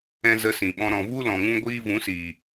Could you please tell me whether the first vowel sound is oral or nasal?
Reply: nasal